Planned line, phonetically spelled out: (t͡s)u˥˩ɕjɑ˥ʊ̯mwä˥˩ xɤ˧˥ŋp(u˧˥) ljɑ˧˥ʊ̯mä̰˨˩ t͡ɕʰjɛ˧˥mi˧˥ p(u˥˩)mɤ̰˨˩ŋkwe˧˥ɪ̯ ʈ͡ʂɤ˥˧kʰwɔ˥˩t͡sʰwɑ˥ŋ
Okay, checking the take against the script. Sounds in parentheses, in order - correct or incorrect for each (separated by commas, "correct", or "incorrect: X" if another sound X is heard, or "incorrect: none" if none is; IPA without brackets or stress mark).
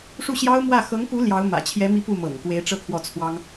incorrect: ʂ, correct, correct